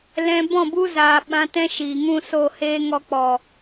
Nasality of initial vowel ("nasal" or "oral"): nasal